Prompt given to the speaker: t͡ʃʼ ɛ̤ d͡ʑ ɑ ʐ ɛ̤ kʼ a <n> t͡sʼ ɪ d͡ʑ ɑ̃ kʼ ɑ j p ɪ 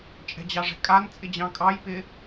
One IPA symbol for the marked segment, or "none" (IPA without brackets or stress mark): n